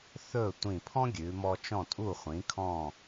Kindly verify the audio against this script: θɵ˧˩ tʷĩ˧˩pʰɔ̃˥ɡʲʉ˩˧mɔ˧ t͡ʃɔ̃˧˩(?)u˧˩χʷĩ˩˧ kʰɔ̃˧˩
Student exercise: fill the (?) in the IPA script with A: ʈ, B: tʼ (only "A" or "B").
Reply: B